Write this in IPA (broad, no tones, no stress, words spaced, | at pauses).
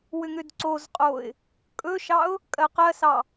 wʏŋʏdǀozqʼoɪ̯ | kʼɵʃɑʊ̯ | kʼɜqɜsɑ